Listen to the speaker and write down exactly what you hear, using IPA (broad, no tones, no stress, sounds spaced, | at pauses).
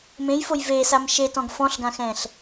m ẽ j f o j v eː s a m ʃ e t ɔ̃ ɡ f ɔ̃ ɬ ɡ ã x ɛ̃ː ɬ